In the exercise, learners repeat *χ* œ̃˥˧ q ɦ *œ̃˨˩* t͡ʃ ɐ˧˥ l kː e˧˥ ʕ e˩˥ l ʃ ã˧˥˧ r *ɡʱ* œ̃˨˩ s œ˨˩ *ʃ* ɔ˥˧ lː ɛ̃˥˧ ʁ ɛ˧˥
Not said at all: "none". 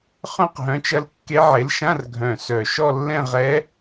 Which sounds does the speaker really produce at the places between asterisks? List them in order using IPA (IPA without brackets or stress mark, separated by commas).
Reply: χ, œ̃˩˥, ɡʱ, ʃ